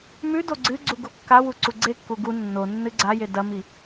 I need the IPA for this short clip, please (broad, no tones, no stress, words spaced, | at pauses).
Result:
mʉ doɡ͡ǀɨɡ͡ǀu ɡokːawu ǀuɡ͡ǀekːu ɡu nːo nːɨɡ͡ǀaje dɐmi